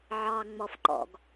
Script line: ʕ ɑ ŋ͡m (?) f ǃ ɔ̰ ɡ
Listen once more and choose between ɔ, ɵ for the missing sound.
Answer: ɔ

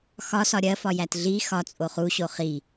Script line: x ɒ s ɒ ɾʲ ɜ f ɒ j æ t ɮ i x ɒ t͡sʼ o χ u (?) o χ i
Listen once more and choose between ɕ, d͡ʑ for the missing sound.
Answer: ɕ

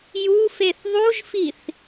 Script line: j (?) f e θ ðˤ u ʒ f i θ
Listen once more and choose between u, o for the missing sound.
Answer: u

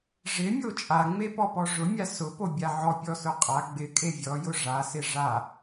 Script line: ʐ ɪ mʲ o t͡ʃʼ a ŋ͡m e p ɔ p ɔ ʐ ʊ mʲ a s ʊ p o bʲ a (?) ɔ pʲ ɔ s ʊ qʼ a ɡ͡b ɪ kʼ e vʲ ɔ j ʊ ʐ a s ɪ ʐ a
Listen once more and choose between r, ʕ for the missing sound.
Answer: ʕ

